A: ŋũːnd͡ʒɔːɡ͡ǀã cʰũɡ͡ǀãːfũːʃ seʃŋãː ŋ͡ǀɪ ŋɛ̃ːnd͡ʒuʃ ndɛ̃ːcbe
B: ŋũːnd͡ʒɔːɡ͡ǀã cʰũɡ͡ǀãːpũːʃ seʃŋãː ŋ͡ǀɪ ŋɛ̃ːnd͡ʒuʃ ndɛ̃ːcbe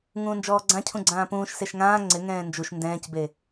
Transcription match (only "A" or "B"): B